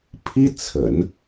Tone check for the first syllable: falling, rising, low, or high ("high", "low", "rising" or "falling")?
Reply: high